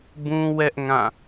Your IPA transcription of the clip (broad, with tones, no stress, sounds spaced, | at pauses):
b ũ˦ w ɛ˦ ʔ ŋ ã˦˨